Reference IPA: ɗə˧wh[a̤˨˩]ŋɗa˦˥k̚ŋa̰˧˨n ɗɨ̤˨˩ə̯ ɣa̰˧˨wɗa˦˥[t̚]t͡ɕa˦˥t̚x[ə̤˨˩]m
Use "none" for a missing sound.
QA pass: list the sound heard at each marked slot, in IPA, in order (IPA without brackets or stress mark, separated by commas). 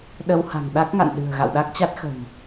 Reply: a̤˨˩, k̚, ə̤˨˩